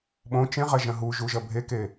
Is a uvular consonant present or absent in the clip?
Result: present